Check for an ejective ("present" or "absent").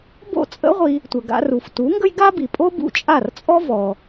present